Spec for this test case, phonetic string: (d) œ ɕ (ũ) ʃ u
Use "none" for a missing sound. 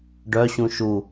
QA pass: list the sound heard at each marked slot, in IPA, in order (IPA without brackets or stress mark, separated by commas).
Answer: ɖ, ũ